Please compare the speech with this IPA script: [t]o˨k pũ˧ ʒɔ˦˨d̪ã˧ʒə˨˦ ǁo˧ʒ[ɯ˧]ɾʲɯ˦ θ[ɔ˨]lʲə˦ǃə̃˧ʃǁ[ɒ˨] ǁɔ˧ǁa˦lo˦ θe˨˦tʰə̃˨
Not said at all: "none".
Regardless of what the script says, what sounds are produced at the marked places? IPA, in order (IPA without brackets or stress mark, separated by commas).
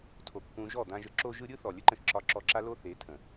tʰ, ɯ˧, ɔ˨, ɒ˧